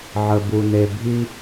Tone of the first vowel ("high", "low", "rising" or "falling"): low